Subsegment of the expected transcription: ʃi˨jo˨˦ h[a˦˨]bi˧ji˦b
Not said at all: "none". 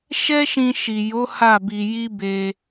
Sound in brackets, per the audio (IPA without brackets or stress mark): a˦˨